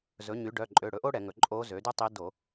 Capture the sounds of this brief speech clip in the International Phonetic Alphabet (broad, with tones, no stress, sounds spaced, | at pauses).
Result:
z ɵ˩˥ ɲ y˩˥ ɖ œ˩˧˩ ǃʼ ø˩˧˩ ɽ ɵ˩˥ ʔ o˥ ɽ ɛ˧˩˧ ŋ ɵ˩˥ ǃʼ o˧˥ z ø˩˥ d y˥ tˤ i˧˥ d o˧˩˧